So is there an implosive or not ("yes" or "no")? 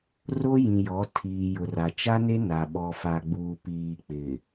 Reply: yes